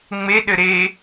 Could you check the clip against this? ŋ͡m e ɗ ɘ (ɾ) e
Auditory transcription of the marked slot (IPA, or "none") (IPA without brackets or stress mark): ɾ